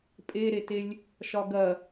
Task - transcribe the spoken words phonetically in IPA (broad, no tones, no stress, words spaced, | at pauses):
pʼeɾetelʲ | ʃɒɡɐ